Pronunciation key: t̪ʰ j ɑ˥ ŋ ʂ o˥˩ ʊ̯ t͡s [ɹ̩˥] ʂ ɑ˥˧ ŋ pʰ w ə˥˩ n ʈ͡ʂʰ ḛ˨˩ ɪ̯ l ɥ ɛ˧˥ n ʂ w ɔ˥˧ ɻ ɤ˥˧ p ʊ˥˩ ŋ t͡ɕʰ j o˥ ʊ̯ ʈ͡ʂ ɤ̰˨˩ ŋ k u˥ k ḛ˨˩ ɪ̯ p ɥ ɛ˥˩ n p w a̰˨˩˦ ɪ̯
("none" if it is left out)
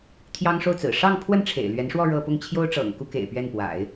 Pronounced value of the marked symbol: ɹ̩˨˩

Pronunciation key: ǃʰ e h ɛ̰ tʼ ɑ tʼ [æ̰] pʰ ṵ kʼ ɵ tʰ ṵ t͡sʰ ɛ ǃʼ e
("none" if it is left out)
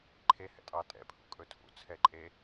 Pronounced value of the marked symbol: ɛ̰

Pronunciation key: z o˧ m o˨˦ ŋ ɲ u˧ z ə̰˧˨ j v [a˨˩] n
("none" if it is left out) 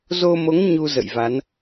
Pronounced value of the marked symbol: a˨˦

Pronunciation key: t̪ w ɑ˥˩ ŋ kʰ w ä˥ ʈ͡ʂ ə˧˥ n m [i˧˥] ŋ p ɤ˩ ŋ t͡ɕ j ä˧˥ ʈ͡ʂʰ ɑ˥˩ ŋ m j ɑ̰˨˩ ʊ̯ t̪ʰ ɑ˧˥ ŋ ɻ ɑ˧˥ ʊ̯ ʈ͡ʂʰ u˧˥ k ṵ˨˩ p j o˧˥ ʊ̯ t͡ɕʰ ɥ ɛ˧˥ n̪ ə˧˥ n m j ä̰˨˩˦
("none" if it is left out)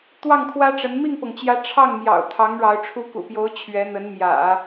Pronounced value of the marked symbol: i˥˩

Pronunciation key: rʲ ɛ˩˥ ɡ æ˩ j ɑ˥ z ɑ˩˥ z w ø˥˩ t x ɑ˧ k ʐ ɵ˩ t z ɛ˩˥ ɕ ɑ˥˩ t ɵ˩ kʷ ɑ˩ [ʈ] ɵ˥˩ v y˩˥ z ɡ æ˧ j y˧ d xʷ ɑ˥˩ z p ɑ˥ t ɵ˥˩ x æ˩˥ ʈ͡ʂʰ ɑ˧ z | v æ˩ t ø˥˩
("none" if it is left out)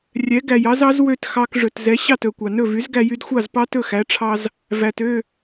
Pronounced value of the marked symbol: n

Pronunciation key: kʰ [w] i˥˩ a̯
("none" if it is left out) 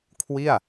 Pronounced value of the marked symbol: w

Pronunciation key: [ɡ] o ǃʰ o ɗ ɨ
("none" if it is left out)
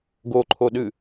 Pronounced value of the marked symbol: ɡ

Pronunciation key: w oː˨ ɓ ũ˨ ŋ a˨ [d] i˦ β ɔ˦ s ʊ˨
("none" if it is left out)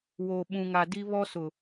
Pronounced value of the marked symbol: d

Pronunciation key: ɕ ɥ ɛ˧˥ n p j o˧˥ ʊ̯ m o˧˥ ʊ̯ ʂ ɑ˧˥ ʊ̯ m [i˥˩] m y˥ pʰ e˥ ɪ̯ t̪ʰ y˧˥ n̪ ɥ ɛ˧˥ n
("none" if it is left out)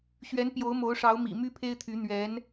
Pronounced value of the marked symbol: ḭ˨˩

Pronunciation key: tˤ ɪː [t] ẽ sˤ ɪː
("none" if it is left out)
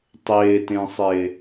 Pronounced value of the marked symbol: t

